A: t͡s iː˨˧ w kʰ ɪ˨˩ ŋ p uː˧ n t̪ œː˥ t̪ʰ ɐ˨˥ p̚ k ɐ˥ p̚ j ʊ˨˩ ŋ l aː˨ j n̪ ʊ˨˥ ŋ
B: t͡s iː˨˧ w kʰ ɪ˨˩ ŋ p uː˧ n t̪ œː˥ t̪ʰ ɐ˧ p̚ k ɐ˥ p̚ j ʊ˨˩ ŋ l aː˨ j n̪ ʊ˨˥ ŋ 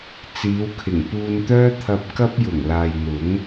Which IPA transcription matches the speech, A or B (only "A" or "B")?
B